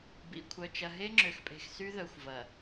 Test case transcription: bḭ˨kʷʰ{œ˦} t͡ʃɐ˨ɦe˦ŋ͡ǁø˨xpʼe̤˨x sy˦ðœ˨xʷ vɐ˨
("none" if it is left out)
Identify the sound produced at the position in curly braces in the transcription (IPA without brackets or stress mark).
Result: œ˨